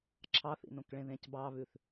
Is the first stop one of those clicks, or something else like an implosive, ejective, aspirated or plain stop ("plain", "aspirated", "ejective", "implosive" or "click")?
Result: click